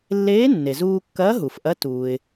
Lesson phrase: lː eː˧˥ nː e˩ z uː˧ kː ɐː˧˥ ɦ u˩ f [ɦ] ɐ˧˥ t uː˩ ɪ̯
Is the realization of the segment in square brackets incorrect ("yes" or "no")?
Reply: yes